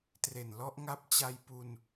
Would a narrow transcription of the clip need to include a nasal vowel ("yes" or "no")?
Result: no